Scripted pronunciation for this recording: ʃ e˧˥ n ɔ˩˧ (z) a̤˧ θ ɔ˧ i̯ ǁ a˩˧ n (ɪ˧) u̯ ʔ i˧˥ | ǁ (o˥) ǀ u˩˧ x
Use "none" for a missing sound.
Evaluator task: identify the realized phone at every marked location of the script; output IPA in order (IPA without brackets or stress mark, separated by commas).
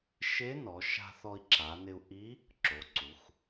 ʃ, ɪ˧, o˩˧